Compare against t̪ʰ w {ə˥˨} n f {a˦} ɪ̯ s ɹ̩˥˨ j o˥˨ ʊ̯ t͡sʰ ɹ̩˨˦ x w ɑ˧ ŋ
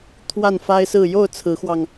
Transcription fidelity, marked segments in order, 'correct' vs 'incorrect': incorrect, correct

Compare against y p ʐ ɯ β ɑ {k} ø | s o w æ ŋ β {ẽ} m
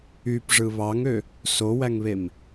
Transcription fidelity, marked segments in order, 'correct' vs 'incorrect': incorrect, incorrect

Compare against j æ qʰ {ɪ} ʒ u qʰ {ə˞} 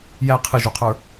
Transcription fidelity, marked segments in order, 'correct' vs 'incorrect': correct, correct

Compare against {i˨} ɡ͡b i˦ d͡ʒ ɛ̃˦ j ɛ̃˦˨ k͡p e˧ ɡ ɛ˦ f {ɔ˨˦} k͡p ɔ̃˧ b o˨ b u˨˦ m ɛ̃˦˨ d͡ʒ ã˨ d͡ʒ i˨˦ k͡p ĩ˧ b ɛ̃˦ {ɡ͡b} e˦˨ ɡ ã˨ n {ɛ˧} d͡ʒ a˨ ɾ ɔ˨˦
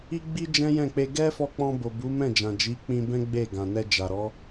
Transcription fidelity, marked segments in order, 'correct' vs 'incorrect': incorrect, incorrect, correct, correct

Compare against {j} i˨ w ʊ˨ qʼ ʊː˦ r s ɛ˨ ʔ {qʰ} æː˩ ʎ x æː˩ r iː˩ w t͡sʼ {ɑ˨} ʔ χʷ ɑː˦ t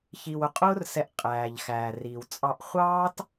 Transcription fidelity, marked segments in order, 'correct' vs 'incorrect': incorrect, incorrect, correct

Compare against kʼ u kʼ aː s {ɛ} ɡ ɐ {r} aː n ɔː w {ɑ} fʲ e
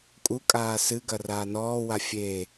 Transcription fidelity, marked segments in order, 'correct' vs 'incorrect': incorrect, correct, incorrect

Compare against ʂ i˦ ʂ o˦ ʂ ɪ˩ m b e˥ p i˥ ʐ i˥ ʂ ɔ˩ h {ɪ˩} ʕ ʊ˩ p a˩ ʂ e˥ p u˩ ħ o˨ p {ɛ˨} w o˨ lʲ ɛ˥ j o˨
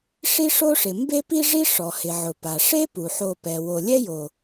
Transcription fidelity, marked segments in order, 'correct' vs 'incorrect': correct, incorrect

